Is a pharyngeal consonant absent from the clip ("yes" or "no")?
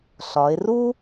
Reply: yes